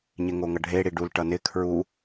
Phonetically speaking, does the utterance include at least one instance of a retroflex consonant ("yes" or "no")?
yes